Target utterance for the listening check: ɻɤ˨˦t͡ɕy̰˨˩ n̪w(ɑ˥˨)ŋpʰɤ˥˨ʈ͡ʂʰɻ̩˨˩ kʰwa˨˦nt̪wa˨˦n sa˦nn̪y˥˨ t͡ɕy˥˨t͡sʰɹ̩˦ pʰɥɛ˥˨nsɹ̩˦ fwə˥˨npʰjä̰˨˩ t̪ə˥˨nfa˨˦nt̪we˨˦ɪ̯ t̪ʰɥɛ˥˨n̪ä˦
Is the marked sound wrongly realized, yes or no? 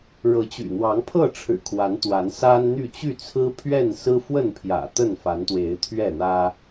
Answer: yes